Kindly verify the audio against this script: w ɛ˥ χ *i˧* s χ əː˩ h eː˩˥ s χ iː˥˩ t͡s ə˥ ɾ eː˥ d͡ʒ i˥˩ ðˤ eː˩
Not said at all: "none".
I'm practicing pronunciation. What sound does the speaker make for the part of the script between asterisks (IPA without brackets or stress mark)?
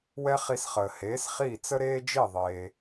i˧